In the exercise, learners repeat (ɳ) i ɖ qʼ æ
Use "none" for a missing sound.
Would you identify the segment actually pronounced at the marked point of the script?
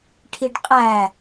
ʈʰ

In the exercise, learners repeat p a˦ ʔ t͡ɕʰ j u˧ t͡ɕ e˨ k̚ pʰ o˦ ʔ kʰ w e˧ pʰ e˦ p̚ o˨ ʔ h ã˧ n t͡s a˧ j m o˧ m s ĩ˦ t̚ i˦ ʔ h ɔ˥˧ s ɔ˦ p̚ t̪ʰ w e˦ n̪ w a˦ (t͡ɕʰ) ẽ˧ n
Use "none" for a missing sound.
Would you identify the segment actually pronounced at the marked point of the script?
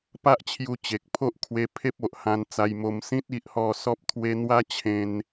t͡ɕʰ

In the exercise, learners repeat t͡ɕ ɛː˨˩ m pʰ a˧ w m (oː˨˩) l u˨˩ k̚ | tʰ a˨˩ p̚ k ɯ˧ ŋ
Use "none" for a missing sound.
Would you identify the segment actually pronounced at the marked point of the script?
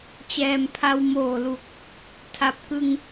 oː˨˩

